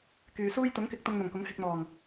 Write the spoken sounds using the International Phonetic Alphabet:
k yː˨ s uː˥ j t̪ ʊ˨˥ ŋ k ɪ˧ k̚ t̪ ʊ˧ ŋ n̪ ʊ˨˩ ŋ k ʊ˨˥ ŋ h ɪ˧ k̚ n̪ ɔː˨˩ ŋ

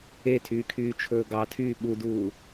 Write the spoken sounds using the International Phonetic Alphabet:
e tʰ yː kʰ yː t͡ʃʰ ɵː ɡ ɑ tʰ yː ɓ u d uː

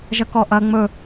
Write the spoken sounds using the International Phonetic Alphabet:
ʒ ɐ k ɔ ʔ ɐ ŋ͡m ɵ

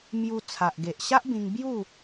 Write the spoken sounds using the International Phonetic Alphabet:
m j u˧ t͡sʰ a˨ ʔ ɡ e˨ ʔ ɕ a˦ ʔ b ĩ˧ ŋ b j u˥˧

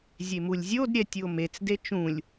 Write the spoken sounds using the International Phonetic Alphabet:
zʲ e m u lʲ zʲ o d ɾʲ ɛ tʲ u o̯ m e t͡s d e t͡ʃ ũ lʲ

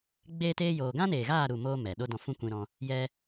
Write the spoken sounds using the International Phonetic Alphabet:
ɡ͡b eː˦ t eː˦ j oː˧ ɡ ã˦ n eː˨ ɣ aː˦˨ ɾ u˦˨ m oː˦ m ɛ˨ ɗ o˦ d ɔ̃˧ f ũ˦ kʷ ĩ˧ ɾ ɔ̃˧ | j ɛ˦

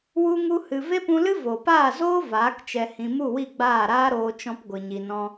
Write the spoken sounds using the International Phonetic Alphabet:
w u˦ ŋ u˦ h ɨ˧ v e˦ p ũ˧ l ɨ˦ v oː˨ p aː˦˨ z oː˦ v aː˨˦ k t͡ʃ ɛ˧ h ĩ˧ m u˦˨ w i˦˨ ɡ͡b aː˦˨ ɾ aː˦ ɾ oː˧ t͡ʃ ɔ̃˧ p ɡʷ ɨ˨ ɲ i˧ n ɔ̃˦

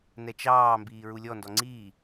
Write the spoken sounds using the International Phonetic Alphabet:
n ɛ t͡ʃ ɑː m b iː ɹ u lʲ ɔ n d ɔ ŋ͡ǀ iː

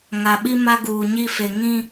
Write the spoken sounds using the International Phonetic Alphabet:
ŋ a˨ ɓ i˦ m a˦ ɡ uː˨ ɲ i˦ f e˨ ŋ ĩ˦

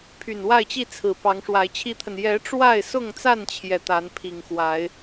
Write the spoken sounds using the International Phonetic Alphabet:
pʰ y˨˩ n w a˥˨ ɪ̯ t͡ɕ i˥˨ t͡sʰ ɹ̩˨˩ p ɑ˨˦ ŋ ʂ w a˨˦ ɪ̯ t͡ɕʰ i˦ t̪ʰ ə˨ n j ɛ˨˦ ʈ͡ʂ w a˥˨ ɪ̯ s ʊ˥˨ ŋ t͡s a˥˨ n t͡ɕʰ j ɛ˩ t̪ a˨˦ n pʰ i˨˩ ŋ x w a˨˦ ɪ̯

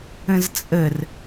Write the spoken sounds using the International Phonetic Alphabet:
ə̃ z t͡sʼ ə r

